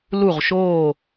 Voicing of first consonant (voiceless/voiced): voiced